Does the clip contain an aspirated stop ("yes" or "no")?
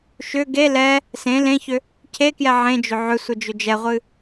yes